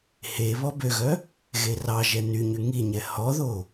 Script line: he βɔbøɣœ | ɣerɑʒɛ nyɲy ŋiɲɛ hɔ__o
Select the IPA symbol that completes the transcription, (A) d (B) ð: B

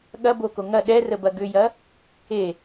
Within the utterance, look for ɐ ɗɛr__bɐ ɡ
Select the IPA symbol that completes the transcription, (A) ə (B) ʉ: A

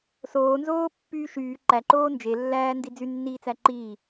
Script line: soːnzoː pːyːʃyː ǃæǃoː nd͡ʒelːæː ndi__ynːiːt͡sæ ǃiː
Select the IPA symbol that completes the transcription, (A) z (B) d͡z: B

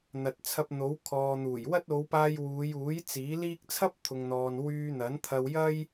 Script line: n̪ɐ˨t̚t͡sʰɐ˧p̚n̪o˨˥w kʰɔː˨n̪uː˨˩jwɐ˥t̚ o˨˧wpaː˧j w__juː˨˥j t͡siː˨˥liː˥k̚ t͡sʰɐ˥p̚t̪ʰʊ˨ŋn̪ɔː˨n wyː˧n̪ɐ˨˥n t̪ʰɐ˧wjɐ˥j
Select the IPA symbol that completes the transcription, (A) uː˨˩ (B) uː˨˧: B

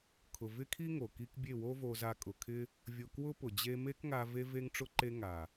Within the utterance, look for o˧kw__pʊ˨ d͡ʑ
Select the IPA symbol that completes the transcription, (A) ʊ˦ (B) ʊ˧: A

